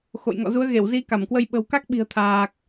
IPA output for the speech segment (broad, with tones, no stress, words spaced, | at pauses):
xo̰˧˨jŋɔ̰˧˨ zu˨˦ə̯ɣe˧˩w zi˧ka˧˩mkwə˧j ɓə̤˨˩wka˦˥k̚ɓi̤˨˩ə̯ t̪ʰaː˨˩k̚